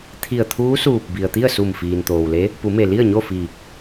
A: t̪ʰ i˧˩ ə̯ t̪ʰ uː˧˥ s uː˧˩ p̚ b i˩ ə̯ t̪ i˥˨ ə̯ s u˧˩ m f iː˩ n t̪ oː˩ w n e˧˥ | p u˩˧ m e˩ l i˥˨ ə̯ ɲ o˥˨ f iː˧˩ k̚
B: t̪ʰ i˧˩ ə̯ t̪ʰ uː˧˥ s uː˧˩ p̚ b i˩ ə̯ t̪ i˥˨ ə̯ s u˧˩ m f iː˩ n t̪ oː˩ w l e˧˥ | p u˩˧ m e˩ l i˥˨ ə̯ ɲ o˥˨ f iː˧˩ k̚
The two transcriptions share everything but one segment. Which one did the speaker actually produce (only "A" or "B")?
B